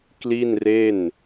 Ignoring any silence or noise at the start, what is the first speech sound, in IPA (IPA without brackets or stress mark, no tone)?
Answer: k